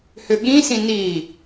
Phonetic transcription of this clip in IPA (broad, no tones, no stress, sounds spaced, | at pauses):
h ʏ ɠ ĩ s ĩ n i